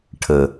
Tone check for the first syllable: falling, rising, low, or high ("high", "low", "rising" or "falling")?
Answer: low